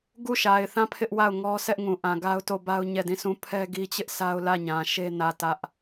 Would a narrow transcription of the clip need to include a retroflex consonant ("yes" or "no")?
no